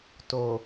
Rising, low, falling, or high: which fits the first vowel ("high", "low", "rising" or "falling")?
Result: low